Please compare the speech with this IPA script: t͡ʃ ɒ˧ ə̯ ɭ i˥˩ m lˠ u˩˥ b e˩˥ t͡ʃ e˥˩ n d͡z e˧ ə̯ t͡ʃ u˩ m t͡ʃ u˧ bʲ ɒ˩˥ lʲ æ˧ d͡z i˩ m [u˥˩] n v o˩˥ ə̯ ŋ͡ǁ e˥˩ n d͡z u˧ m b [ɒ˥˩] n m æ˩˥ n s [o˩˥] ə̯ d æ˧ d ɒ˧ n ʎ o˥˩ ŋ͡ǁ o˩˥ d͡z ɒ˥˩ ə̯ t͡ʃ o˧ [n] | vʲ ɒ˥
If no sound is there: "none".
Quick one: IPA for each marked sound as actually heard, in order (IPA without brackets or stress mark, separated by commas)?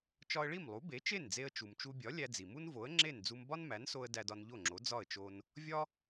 u˥, ɒ˥, o˧, n